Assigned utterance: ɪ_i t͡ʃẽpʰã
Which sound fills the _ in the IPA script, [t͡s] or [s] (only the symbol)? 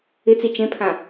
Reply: t͡s